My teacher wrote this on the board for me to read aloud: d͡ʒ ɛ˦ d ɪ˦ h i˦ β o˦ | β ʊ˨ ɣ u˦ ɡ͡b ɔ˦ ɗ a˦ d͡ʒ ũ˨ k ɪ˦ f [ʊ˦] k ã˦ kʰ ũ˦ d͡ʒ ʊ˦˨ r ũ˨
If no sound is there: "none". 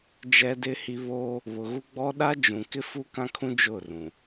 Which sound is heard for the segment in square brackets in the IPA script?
u˦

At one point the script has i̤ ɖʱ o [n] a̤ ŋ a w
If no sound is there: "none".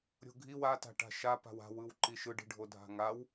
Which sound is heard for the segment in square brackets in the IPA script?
dʱ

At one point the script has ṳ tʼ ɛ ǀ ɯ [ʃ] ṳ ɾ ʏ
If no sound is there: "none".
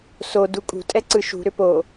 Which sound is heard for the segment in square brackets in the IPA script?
ʃ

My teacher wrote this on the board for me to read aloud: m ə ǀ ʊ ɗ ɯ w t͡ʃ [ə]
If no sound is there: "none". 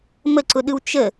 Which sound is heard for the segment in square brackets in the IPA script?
ə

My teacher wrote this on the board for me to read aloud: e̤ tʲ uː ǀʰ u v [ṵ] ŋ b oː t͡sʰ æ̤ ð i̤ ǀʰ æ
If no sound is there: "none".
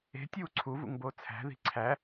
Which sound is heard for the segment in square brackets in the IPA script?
ṵ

